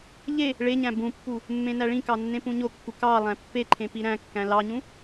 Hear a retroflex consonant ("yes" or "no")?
yes